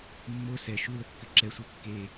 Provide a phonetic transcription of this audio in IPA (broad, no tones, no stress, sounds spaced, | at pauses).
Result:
mː o s ɛ ʃ u l ə kː ʏ ǁ ɛ sʷ e kː e